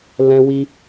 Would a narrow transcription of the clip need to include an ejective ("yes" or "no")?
no